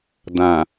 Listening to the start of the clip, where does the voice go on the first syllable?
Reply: low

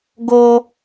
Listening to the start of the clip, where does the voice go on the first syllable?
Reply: high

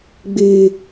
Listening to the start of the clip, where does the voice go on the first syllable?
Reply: low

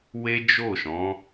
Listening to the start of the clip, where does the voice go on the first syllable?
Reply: high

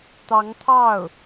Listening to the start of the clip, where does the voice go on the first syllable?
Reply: rising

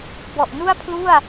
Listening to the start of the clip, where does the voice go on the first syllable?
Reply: low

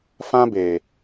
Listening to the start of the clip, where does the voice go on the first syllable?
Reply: high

